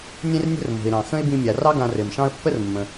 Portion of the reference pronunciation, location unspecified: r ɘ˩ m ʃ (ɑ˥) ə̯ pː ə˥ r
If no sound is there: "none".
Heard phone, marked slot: ɑ̃˥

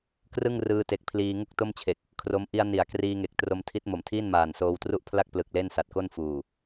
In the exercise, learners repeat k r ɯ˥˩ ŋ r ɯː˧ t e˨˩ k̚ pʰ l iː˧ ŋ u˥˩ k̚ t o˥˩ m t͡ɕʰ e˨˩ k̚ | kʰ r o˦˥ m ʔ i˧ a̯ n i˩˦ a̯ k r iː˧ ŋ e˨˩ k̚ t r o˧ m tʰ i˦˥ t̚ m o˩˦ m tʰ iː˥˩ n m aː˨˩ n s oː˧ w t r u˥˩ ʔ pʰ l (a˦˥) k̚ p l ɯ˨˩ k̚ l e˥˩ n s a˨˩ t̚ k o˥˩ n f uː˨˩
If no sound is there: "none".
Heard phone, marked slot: a˥˩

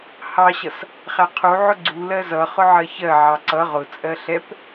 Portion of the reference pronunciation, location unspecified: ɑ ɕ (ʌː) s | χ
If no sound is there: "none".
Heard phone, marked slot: ʌ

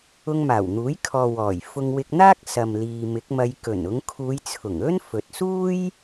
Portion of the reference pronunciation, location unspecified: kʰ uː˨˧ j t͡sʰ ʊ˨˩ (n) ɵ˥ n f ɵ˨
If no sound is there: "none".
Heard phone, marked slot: ŋ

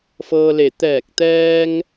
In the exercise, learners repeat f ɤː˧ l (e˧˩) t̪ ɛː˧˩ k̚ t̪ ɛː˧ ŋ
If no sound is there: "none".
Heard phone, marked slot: e˧˩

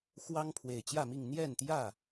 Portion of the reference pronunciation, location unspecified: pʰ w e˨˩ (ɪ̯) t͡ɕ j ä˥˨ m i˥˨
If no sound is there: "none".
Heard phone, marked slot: ɪ̯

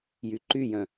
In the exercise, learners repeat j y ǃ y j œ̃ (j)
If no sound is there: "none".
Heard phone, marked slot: none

